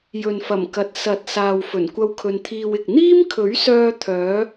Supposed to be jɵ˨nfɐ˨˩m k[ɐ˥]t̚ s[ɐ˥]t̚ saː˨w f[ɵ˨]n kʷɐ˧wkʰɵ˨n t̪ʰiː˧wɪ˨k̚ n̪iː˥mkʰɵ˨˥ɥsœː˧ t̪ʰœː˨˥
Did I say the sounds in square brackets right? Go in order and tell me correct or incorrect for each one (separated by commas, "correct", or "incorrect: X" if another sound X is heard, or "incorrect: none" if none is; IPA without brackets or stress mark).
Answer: incorrect: ɐ˨, incorrect: ɐ˨˥, incorrect: ɵ˨˩